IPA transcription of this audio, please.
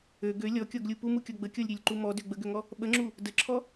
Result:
ø ɡø lʲɔkʲɔɡlʲu pumukʲɔ ɡ͡bəkʲɔlʲɾʲølʲǃu mɔdø ɡ͡bəɡøŋɔ | ɓəŋ͡ǁu | dəǁʰɔ

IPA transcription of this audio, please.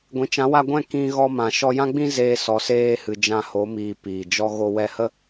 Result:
ɡʷĩ˨t͡ʃã˨˦wa˧ɡʷɛ̃˦˨ kĩ˧ɣɔ˧mã˨ ʃɔ˧jã˦ɡ͡bĩ˦ zeː˧sɔ˨seː˧hɨ˨ d͡ʒã˧ ho˨˦miː˨ piː˨d͡ʒɔ˦ ɣo˧wɛ˧hə˦

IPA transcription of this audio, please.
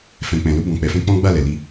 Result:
fɛ̃˨k͡pɛ̃˨ lo˧bɔ̃˨k͡pɛ˨fɛ̃˧ k͡pɔ̃˦ɡ͡ba˦˨lɛ˨li˧

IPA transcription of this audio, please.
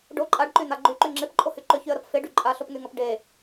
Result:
ɖo ǃʼaɖǃyn̪a ɡ͡ǃyǃy ŋ͡ǁepǃʼohy ǃʏçyə̯ɾɐp feɖy ǃʼaɬopŋyŋɐp ɖe

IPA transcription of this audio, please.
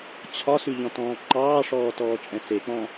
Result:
t͡ɕʰɒsʉʎɔ̃tɔ̃ː ŋ͡ǃɑːʂɔːtɔːt͡ʃʼɛ̃ sek͡pɔ̃

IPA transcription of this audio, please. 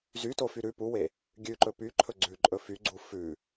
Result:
zytofy ɾʉ puwe | ɡʲʉǃɵ pyǃʰɵ ɡ͡ǀʉǃʼɵ fyɡ͡ǀu fʉ

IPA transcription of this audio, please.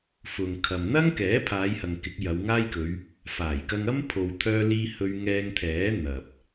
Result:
fʊ˨ŋkʰɐ˨m n̪ɐ˥ŋkɛː˨˥ pʰaː˨˧jhɐ˨ŋ kɪ˨˥k̚jɐ˨˧wŋaː˥jkɵ˨˧ɥ | faː˨˩jkɐ˧ŋɐ˥m pʰo˧wt̪ʰœː˥liː˥ hɵ˥ɥ ŋɛː˧ŋt̪ʰɛː˨˥ n̪ɐ˨p̚

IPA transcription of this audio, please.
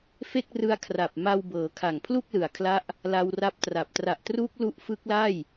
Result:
fe˥˩k̚rɯ˦˥a̯ kʰra˨˩p̚ma˧wbɤː˩˦ kʰa˨˩ŋpʰlu˥˩k̚lɯ˨˩a̯kʰla˦˥ʔ | la˧wra˦˥p̚tra˨˩p̚ tra˨˩ʔtruː˦˥k̚ lu˦˥ʔfɯ˦˥k̚la˥˩j

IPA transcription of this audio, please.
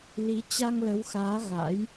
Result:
li˨˦ t͡ɕa˧ŋlə˨˦wxaː˨˦ ɣa̰˧˥j

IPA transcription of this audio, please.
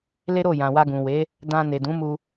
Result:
le˦ ɾo˦˨ jã˨wa˧ɡũ˨ we˨˦ | dã˧ ne˨dũ˨˦ mu˧

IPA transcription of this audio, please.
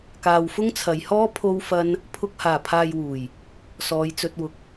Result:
kaː˨wfʊ˥ŋt͡sʰɐ˨˧jhɔː˥ pʰo˧wfɐ˧n | pʰʊ˨k̚haː˨˩pʰaː˨jwuː˨˩j | sɔː˨˧jt͡sɵ˧t̚wʊ˧k̚

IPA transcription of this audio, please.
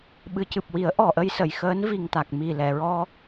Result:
ɓɨ˨˩˦cɨ˨˩p̚ wi˨˩˦ə̯ ʔɔ˨˩ʔə˧jsə˨˩˨j xəː˧˥n vi˨˩ŋt̪a˨˩k̚ mi˨˩lɛ˨˩˨ɹɔ˧

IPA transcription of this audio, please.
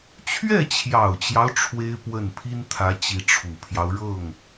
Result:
t͡ɕʰɥɛ˥˩t͡ɕʰjɑ˨˩ʊ̯t͡ɕjɑ˦ʊ̯ ʈ͡ʂʰwe˥ɪ̯pwə˥˩n pʰi˥nt̪ʰä˧˥ t͡ɕi˧˥ʈ͡ʂʰu˨˩pʰjɑ˦ʊ̯ ɻɤ˥˩ŋ

